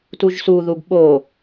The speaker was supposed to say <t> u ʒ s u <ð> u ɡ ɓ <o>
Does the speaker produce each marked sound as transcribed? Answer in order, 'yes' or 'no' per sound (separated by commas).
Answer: yes, yes, yes